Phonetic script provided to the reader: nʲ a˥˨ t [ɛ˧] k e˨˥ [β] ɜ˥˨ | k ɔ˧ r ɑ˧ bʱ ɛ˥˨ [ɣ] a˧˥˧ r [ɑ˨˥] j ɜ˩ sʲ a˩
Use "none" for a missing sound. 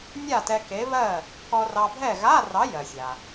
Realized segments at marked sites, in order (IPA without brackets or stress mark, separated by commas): ɛ˧, β, ɣ, ɑ˨˥